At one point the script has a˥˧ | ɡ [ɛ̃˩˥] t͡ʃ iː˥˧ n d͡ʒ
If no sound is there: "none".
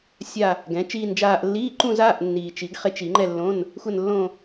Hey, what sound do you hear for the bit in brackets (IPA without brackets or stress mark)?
ɛ̃˩˥